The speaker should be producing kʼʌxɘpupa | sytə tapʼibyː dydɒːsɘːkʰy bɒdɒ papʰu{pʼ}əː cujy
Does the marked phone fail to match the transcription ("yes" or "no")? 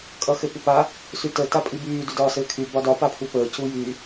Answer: yes